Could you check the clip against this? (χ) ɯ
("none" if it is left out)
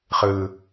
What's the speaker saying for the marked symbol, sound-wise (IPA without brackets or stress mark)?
χ